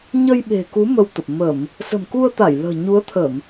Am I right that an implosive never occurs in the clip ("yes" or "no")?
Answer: no